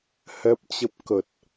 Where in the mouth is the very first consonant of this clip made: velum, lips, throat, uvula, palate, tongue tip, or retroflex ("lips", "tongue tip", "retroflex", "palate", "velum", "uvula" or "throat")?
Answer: throat